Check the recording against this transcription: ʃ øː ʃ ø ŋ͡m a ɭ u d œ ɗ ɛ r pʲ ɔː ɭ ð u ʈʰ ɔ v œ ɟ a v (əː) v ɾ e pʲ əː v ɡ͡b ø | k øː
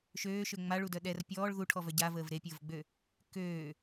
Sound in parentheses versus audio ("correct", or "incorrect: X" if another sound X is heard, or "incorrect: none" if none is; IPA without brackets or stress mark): correct